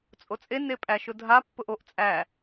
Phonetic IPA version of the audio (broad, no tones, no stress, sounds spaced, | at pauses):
t͡sʼ o t͡sʼ e n e pʼ æ ʃ ʊ dʱ a pː ʊ ʔ o ʔ t͡sʼ æ